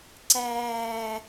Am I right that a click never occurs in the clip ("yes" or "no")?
no